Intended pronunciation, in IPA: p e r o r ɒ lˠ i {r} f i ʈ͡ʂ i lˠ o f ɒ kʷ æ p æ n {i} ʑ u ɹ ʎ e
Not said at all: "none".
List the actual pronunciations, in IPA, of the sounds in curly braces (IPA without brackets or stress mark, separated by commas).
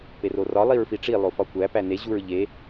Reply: ɹ, e